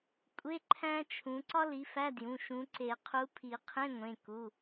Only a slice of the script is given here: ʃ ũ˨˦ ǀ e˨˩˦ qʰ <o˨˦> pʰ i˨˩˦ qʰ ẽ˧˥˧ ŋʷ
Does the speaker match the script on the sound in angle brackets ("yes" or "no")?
no